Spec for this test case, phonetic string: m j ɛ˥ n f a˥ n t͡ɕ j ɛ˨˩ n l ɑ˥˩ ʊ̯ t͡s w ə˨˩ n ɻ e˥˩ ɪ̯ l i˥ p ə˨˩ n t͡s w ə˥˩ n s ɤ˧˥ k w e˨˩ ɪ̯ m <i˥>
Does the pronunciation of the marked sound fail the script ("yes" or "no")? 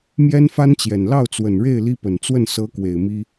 no